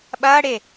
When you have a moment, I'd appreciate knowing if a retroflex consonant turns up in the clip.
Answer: yes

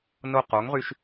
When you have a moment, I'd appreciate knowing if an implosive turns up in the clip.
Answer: no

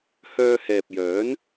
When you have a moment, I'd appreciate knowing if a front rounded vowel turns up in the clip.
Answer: yes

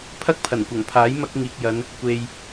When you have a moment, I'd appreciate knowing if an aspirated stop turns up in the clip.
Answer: yes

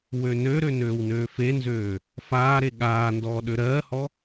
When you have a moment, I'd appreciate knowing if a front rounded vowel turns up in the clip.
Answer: yes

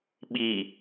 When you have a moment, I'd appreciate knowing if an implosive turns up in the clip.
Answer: yes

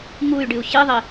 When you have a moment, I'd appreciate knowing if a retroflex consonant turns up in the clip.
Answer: yes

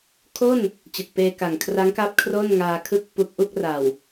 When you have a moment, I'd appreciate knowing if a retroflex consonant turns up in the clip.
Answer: no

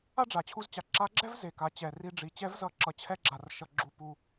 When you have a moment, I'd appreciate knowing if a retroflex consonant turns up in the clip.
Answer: yes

